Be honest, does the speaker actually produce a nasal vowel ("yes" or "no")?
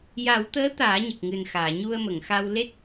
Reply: no